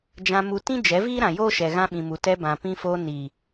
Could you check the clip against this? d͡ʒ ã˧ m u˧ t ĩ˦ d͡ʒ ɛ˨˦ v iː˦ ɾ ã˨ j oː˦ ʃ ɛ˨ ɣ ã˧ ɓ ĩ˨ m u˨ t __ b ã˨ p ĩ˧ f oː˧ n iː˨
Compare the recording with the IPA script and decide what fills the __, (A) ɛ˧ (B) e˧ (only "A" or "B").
A